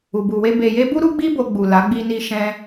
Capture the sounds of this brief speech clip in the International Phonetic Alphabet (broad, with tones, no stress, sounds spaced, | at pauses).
u˨ b u˨ w e˧ b e˨ j e˧ b u˦ ɾ u˦ ɡ͡b i˦ b o˧ ɡ͡b u˨ l a˨˦ ɡ͡b i˦ n i˦ ʃ ɛ̃˦